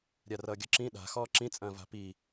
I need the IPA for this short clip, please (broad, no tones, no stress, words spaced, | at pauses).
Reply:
ɾʲarʌːɡʲɔǁĩ ɗa̤ xɔːǁĩt͡sʼɐ̃ːva̤ pi